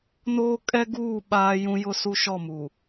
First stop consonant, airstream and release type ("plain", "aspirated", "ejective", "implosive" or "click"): ejective